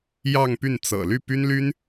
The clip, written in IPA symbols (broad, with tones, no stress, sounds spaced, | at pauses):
j ɑ˥˧ ŋ p y˥˩ n t͡s ɤ̰˨˩ l y˥˩ p y˥ n l y˥ n